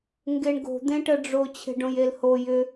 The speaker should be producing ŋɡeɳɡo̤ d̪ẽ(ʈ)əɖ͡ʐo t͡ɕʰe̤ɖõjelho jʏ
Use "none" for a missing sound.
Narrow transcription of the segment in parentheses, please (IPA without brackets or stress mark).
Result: ʈ